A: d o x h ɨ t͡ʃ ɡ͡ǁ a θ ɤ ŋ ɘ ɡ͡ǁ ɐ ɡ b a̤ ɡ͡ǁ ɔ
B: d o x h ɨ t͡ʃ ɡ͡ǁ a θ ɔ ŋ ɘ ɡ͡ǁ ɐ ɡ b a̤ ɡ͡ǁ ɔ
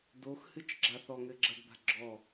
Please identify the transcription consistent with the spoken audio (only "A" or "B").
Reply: B